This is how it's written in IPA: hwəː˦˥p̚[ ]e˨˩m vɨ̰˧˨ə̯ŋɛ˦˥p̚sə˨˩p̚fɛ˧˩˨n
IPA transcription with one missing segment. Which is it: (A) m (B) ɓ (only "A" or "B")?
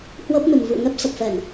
A